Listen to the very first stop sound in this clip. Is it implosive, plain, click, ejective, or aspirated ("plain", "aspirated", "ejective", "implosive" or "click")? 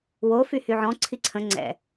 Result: click